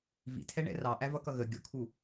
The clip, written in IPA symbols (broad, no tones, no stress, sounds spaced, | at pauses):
v ḭ tʰ ɛ ɳ ɛ̰ r ɑ ʔ æ v ʌ k ʌ ɣ ə ɡʲ ʊ kʰ u